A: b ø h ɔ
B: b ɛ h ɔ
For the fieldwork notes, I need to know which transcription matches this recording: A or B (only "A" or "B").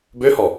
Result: A